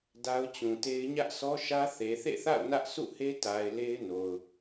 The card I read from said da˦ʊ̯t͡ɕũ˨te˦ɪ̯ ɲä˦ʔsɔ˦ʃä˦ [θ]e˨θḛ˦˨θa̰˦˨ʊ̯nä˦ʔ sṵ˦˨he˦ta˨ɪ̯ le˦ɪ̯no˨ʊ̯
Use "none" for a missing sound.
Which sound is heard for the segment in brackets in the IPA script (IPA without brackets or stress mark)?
θ